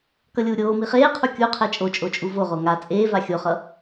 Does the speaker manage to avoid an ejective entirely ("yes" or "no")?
no